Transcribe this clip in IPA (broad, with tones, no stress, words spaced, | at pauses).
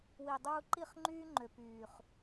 wi˨dˤuː˧ǃi˦˨χ ŋ͡ǃyː˦ŋ͡ǃø˨ pyː˨χ